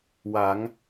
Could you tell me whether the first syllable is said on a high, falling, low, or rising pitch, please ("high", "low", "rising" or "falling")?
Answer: rising